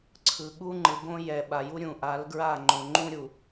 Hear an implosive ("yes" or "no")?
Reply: yes